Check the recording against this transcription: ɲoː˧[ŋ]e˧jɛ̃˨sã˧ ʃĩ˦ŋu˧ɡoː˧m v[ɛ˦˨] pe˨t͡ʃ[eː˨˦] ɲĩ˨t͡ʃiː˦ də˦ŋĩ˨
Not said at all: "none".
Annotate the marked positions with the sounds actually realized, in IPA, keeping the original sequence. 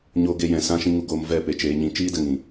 ɡ, ɛ˦˨, eː˨˦

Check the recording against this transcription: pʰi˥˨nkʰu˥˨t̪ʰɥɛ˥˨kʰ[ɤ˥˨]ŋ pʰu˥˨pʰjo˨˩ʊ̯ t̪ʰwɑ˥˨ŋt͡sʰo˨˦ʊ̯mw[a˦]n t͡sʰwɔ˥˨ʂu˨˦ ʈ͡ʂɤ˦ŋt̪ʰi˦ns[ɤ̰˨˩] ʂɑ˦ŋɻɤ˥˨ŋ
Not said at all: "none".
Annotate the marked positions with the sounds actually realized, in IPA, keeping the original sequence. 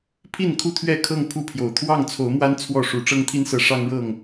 ɤ˥˨, a˦, ɤ˨˦

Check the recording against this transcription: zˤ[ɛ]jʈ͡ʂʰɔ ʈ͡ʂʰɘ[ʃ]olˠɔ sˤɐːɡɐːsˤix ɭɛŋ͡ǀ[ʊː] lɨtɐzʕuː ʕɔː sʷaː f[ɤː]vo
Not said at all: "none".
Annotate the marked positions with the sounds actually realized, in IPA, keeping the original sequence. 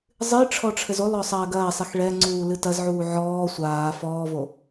ɨ, z, uː, ɔː

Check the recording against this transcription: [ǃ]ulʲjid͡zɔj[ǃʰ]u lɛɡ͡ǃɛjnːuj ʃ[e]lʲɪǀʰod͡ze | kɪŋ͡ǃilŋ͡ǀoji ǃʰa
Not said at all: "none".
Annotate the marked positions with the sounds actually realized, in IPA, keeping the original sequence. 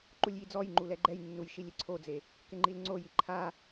ǃ, ŋ͡ǃ, i

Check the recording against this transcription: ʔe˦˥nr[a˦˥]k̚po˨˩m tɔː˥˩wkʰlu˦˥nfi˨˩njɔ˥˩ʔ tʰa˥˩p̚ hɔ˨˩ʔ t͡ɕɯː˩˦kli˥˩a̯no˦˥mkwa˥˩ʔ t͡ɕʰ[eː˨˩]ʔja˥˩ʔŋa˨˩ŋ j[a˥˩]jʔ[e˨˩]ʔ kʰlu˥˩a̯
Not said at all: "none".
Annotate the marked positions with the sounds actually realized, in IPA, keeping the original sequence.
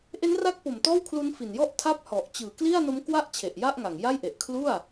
a˦˥, e˨˩, a˥˩, e˨˩

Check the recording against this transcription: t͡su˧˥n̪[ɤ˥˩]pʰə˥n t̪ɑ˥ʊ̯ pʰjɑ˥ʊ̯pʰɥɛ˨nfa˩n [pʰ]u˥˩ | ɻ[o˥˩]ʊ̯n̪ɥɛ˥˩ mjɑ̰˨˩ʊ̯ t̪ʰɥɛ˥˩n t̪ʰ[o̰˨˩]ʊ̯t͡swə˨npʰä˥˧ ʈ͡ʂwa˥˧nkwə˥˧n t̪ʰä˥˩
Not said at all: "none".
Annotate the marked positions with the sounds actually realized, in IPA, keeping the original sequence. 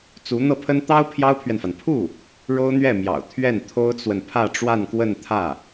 ɤ˥˩, pʰ, o˥, o˥

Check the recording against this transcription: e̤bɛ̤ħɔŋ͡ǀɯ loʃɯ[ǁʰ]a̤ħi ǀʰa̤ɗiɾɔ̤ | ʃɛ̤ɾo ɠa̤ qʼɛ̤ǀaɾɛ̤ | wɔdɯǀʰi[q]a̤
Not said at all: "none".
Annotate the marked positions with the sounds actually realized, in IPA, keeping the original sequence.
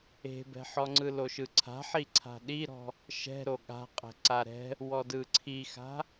ǀʰ, x

